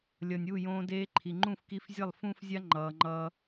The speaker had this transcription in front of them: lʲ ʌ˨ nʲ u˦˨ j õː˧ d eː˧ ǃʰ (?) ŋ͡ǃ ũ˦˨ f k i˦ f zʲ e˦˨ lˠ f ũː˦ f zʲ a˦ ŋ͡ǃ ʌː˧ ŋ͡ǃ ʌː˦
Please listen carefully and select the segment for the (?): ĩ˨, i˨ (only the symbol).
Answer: i˨